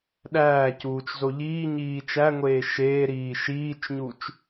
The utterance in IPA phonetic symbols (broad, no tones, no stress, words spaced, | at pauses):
ɗæːcuːt͡ʃzo ʎiːɲiː t͡ʃæŋʷeː ʃeːɾiː ʃiːt͡ʃɲut͡ʃ